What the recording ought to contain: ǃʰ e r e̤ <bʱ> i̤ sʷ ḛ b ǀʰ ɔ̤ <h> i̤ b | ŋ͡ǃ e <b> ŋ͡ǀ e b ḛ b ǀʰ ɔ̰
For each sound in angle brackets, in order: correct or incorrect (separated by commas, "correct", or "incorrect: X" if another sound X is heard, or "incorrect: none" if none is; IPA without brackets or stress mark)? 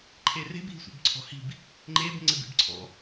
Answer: correct, correct, correct